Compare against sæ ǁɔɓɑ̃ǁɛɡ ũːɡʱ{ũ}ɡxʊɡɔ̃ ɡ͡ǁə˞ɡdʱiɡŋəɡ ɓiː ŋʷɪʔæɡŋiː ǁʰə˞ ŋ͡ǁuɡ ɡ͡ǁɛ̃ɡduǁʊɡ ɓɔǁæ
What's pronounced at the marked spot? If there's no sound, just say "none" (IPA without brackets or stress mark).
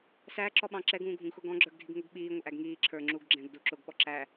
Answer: ũ